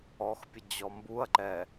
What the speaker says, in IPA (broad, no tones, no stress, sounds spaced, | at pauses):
ɔ x pʲ ə d͡ʑ ɔ m b u ɐ̯ ǃ ɛ